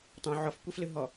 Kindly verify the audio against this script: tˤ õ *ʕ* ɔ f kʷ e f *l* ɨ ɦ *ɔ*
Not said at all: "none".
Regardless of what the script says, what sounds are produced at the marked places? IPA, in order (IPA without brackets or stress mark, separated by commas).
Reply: ʕ, l, ɔ